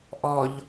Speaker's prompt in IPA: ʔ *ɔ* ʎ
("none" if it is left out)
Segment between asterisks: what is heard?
ɔ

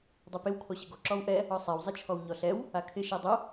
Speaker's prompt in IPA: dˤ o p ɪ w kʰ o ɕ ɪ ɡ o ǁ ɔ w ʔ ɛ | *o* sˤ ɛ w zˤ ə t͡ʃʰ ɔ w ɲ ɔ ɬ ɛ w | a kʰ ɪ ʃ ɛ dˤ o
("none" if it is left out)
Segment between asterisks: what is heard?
ɔ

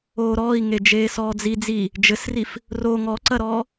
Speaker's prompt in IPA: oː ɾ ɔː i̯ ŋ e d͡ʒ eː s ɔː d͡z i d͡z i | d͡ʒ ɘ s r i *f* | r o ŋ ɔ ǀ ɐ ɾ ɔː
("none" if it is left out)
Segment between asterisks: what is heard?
f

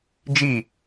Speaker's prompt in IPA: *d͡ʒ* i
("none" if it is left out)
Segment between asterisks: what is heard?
d͡ʒ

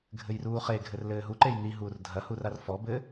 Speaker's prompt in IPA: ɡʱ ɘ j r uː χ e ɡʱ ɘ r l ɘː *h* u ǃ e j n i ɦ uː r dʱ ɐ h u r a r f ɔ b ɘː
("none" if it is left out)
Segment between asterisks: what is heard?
ɦ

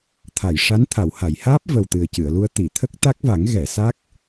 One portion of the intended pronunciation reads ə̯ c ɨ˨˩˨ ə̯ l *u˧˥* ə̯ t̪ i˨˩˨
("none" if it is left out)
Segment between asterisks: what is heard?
u˧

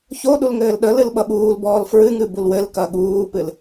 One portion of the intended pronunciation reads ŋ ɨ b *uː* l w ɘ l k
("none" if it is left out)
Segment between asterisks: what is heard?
u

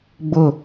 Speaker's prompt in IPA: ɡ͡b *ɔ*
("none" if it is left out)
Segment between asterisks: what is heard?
ʊ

